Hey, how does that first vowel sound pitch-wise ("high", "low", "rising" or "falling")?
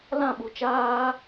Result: falling